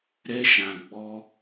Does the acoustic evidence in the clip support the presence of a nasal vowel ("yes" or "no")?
yes